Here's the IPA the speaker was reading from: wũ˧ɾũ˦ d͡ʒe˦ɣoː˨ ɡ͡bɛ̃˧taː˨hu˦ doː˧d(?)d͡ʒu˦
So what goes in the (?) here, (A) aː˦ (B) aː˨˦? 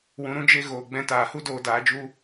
B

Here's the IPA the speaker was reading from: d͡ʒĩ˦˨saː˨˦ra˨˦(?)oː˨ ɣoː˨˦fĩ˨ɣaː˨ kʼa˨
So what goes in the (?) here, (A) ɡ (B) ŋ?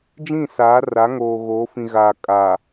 B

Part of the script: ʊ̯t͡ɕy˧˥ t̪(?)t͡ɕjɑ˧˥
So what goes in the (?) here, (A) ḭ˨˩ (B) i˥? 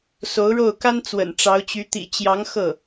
A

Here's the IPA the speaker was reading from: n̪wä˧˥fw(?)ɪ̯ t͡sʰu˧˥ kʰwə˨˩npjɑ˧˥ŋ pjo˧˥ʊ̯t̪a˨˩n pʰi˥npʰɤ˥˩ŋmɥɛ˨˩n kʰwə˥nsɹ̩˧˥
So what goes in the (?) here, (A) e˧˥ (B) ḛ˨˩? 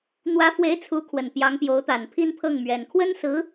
A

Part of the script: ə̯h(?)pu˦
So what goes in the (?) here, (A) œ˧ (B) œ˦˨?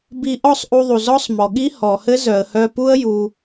A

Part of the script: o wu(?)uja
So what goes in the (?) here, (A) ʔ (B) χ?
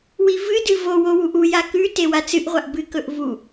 A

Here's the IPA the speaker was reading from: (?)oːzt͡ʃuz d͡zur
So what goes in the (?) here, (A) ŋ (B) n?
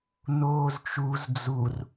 B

